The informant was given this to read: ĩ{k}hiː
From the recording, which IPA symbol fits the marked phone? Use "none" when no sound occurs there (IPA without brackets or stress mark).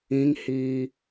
ŋ